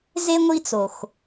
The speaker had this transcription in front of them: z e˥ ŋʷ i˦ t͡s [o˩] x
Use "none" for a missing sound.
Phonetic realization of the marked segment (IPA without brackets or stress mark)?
o˩